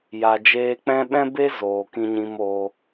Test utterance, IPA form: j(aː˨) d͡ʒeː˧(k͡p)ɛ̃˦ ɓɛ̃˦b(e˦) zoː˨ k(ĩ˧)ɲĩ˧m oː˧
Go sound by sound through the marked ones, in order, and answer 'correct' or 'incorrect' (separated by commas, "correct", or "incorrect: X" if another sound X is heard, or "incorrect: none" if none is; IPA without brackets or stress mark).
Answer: incorrect: a˨, correct, correct, correct